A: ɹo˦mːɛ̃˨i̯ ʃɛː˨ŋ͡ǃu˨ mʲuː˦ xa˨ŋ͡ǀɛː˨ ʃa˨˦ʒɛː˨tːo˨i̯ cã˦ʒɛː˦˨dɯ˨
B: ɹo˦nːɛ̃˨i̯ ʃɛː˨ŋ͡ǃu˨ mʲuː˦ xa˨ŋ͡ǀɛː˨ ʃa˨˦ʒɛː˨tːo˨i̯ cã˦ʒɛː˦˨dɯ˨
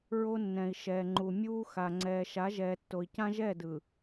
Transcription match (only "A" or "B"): B